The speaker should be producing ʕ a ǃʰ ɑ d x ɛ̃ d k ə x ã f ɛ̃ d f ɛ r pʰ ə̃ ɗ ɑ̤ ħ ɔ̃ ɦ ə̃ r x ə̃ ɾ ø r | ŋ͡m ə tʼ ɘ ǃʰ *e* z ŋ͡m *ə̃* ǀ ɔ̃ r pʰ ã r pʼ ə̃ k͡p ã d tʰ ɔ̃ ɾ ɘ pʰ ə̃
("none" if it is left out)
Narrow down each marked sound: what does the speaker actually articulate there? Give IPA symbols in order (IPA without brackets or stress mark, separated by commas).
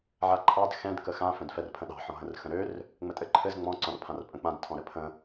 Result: ɘ, ɔ̃